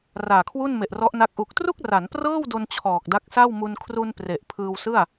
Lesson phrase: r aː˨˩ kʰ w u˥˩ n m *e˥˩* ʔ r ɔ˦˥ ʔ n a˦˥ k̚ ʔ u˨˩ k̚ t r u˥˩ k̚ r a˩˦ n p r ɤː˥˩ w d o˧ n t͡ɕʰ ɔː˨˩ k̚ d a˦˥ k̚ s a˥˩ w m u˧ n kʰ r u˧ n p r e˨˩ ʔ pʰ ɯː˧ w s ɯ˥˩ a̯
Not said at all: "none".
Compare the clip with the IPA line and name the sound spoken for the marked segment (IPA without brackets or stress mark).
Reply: e˨˩